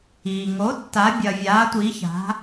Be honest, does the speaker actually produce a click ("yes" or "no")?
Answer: no